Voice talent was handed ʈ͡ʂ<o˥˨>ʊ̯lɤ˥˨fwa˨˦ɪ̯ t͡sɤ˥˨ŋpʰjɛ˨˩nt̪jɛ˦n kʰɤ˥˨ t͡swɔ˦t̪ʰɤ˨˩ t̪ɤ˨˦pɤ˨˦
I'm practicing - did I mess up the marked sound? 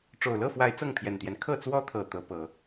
yes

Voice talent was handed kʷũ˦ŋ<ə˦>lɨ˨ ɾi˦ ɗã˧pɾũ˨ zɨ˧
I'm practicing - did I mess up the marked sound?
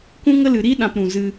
no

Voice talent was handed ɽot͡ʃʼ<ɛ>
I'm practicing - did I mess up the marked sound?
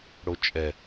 no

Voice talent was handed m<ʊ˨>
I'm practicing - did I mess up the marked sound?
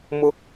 yes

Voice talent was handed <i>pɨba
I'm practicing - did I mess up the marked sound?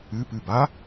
yes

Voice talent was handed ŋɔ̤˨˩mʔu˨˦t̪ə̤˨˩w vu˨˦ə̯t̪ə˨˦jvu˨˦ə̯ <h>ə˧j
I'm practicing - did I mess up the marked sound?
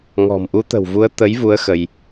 yes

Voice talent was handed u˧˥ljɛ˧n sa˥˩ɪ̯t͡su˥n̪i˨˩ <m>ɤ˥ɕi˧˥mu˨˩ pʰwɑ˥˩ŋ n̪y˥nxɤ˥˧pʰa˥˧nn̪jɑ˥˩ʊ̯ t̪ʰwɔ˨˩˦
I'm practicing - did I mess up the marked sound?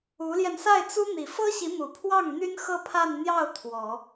yes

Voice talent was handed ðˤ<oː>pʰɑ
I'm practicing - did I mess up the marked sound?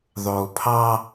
no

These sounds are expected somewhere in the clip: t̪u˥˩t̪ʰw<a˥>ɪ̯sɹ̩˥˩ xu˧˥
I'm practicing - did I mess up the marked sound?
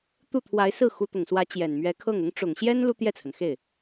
yes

